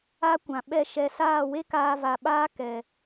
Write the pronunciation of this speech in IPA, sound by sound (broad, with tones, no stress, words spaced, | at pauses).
a˦kʷã˨ ɓɛ˧ ʃɛ˨ saː˦˨we˦ kaː˧va˨ɓaː˦ kɛ˨